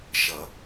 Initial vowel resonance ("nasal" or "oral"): oral